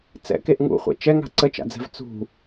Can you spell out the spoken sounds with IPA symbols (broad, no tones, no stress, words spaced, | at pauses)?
t͡sɛ̰keʔ ŋṵχʷɛ̰ t͡ʃɛŋa̤ ǀət͡ʃa̰d͡zɛ̤v t͡sṳ